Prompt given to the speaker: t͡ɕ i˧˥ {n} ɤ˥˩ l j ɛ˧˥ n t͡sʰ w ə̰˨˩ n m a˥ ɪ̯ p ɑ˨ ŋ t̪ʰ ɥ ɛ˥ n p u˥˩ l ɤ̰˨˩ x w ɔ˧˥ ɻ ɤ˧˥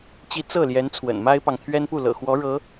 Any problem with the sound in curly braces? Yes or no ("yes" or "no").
yes